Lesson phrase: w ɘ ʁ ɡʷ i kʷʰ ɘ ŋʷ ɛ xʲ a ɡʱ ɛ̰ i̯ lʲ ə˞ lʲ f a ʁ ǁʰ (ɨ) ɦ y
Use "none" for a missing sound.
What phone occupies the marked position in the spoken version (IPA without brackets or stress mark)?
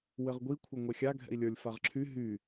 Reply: y